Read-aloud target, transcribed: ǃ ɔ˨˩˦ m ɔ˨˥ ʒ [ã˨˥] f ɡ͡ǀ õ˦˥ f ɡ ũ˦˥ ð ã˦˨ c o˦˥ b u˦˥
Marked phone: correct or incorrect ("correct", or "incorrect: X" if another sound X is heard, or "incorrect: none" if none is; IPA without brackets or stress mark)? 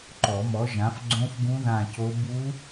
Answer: correct